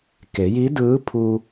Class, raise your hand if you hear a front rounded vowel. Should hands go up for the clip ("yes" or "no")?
no